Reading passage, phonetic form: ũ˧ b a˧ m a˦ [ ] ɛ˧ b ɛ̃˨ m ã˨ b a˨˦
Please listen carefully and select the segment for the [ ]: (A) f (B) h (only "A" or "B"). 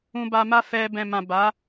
A